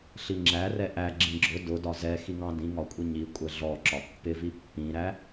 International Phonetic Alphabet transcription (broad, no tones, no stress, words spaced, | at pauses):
ɬiŋ͡ǁæ rɛʔæ ɡ͡ǁĩɡ͡ǁʊ dʊ dɒzɛxiŋɑ̃ dĩŋɒkʷʼi ɲi kʷʼɛɮɔǁɒ pːɪvi pːĩɾæ